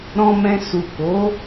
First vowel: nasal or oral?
nasal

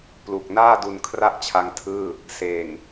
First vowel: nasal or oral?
oral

